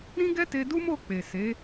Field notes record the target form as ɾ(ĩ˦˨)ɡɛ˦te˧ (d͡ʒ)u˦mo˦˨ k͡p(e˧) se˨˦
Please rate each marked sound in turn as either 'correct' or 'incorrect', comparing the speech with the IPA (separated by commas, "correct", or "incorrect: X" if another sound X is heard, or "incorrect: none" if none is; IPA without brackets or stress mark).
incorrect: ĩ˦, incorrect: d, incorrect: e˨